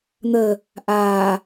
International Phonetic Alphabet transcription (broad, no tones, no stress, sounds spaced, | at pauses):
n̪ ə | ʔ aː